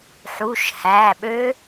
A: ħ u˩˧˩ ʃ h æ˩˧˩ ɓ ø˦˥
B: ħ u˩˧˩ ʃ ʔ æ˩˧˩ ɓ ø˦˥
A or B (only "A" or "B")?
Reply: A